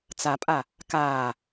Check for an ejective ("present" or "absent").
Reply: present